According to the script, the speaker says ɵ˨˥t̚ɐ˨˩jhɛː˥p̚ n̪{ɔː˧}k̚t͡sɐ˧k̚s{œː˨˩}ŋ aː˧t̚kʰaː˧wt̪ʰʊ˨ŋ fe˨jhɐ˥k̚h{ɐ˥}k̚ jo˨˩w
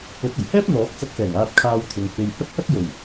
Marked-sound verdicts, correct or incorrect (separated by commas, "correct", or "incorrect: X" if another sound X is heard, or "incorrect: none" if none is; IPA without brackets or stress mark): incorrect: ɔː˨˥, incorrect: ɛː˨˩, correct